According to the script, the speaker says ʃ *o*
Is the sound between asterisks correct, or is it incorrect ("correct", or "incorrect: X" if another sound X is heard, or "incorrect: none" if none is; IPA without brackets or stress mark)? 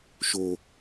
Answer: correct